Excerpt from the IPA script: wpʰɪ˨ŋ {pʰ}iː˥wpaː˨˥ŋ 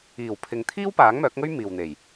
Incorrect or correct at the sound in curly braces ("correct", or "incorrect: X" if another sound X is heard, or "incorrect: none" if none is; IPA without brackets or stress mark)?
incorrect: t̪ʰ